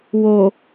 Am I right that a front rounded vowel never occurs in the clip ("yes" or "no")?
yes